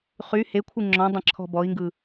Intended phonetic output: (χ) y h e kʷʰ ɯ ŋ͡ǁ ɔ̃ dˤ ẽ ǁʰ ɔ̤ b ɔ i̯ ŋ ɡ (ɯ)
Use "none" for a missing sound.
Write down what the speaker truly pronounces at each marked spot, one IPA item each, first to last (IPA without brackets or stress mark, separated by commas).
χ, ɯ